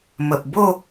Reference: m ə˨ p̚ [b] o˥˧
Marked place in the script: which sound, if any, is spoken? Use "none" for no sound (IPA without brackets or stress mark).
b